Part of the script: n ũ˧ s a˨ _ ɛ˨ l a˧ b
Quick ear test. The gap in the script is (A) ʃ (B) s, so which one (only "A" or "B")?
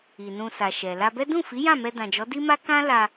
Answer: A